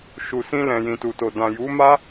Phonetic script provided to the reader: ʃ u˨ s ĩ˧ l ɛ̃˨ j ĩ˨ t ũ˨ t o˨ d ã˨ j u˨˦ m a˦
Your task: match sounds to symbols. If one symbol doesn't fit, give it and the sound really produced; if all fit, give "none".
ũ˨ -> u˨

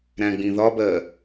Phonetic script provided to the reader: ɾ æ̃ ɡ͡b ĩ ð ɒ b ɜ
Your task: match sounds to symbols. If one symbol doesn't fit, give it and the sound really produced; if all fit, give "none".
none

